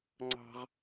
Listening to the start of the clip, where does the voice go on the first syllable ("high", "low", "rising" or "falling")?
high